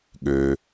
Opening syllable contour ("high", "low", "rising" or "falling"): low